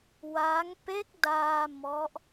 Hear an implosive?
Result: no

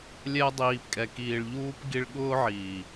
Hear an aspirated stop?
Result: no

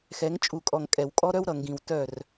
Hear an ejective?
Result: yes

